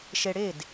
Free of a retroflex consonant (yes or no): no